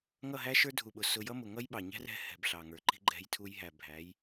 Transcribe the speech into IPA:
ŋ ʌ˦˨ ɦ æ˦ ʃ ə˞˦ dʱ u˨ ɓ ʊ˨ s ʊ˧ j ʌ˦ m ʊ˨ ŋ ʌ˦ j ɓ ɑ˨ ɲ æ̤˦ r ɛ̤˧ h ɛ̤˨ b ɬ ɑ˨ ŋ ə˞˨ ǃ i̤˦ ɡ͡ǃ ɛ̤˧ j tʰ u˧ j ɦ æ˨ bʱ æ˨˦ j

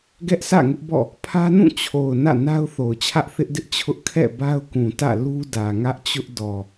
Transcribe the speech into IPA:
ɡ ɛ˦ ʔ sʰ ä̰˦˨ ŋ ʊ˦ ʔ b ɔ̰˦˨ | pʰ ä˦ n ũ˦˨ t͡ɕʰ o˨ ʊ̯ n ä̰˦˨ n a˦ ʊ̯ θ o˨ ʊ̯ t͡ɕʰ ä˦ ʔ θ ɪ˦ ʔ d ɪ˦ ʔ t͡ɕʰ ʊ˦ ʔ kʰ ɛ̰˦˨ b a˦ ʊ̯ k ũ˨ t ä̰˦˨ l u˦ d ä˨ ŋ ä˦ ʔ t͡ɕ ʊ˦ ʔ d ɔ˨

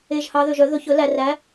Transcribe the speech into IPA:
e˨ ʒ h ɑ˨˦ ð ø˨ ʒ œ˨˩˦ ð ɵ˨ ç ɵ˨˩˦ l æ˨ r æ˨˦

